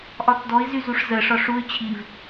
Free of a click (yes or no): yes